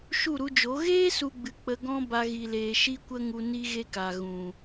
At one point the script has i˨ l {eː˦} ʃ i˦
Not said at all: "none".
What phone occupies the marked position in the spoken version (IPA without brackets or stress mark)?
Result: eː˨